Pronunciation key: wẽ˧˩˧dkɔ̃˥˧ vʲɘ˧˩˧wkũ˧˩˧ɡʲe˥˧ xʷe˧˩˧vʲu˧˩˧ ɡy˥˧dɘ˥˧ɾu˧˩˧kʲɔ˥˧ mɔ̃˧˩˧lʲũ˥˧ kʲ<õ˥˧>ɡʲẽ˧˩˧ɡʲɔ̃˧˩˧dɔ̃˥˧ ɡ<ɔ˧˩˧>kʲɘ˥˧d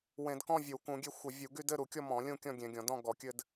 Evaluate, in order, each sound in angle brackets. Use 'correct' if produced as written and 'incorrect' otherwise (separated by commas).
incorrect, correct